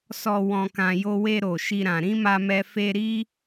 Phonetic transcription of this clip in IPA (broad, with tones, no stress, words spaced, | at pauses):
sɔ˨ wɔ̃˨kã˨jo˧we˧ ɾo˨ʃi˧ɾã˨ ɾĩ˨˦ma˧mɛ˧ fe˧ ɾi˦